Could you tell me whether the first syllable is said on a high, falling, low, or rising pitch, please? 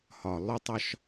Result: low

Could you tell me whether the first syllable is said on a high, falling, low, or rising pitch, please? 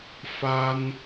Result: high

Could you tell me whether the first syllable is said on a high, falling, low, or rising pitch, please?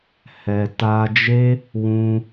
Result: low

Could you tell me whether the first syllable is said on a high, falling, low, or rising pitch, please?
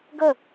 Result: falling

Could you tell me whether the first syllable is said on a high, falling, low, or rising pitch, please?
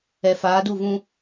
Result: low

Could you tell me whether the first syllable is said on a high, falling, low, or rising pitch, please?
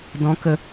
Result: low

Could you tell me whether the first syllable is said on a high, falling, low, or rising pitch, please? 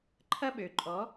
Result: high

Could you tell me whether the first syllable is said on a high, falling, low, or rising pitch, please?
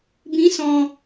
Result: rising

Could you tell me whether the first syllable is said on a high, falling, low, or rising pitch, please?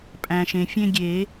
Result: low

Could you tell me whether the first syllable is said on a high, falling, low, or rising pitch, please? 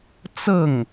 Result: falling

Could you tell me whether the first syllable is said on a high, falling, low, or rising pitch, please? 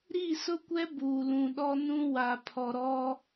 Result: falling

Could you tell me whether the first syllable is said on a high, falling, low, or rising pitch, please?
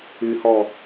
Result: low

